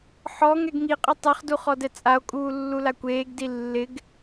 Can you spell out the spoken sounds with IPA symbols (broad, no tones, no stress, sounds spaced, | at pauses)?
ħ ɔ ŋ ɛ ɡ ŋ i qʼ ɪ tˤ ɛ χ d u χ ɔ d ɛ t͡sʼ a o̯ kʼ uː lː u l a kʷ eː ɡ d i lː ɪ ɡ